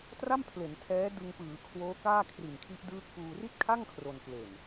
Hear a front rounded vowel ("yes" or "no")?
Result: no